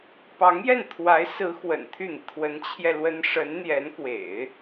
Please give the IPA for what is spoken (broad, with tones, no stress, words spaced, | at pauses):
pɑ˧˥ŋjɛ˥˩nt̪ʰwa˧˥ɪ̯sɹ̩˧˥ xwə̰˨˩nt̪ʰy˥˩n̪i˩ t̪ʰwə˧˥nt͡ɕʰjɛ˧ lwə˥n ʂə˧˥n n̪jɛ˧˥nkwḛ˨˩˦ɪ̯